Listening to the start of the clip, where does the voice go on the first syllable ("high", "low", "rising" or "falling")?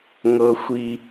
high